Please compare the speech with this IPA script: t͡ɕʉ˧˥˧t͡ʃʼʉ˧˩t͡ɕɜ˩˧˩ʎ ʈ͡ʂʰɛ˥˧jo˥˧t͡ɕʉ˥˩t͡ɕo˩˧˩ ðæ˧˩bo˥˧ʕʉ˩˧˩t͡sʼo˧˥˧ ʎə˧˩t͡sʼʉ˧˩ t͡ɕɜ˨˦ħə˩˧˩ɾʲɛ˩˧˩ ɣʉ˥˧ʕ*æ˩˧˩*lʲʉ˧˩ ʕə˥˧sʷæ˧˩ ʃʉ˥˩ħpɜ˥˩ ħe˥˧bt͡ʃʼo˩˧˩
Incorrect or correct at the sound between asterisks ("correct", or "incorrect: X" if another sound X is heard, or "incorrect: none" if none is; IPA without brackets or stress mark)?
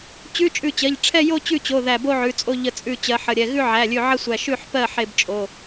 correct